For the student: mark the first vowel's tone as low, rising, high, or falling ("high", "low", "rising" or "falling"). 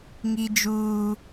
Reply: high